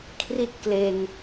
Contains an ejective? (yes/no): no